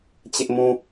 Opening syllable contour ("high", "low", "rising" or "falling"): high